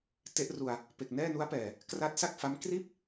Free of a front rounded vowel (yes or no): yes